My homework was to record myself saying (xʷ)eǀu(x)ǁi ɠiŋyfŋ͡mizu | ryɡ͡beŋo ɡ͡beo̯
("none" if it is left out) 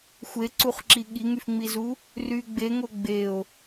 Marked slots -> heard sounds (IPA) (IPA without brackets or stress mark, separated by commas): xʷ, χ